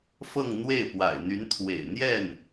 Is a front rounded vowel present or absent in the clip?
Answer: present